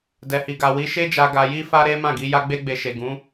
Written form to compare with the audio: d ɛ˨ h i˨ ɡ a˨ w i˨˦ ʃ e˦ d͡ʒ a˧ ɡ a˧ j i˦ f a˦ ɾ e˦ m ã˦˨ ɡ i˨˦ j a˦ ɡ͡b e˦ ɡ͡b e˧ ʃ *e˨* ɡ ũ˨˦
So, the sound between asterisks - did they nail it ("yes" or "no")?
yes